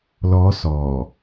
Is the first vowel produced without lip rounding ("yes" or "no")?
no